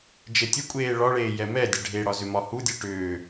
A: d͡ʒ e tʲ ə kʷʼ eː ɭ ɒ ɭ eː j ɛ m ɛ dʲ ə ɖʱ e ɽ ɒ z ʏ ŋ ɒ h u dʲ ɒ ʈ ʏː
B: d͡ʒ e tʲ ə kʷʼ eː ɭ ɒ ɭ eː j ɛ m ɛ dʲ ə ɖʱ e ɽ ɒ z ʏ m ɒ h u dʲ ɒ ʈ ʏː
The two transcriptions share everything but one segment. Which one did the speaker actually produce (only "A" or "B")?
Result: B